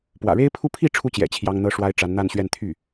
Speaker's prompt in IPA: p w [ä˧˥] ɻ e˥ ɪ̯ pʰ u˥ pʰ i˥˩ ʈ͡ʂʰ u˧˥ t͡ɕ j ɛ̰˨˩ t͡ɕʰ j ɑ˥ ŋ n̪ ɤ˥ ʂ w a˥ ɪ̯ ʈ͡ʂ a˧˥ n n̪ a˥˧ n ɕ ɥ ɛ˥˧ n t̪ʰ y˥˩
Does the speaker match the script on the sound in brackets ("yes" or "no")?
no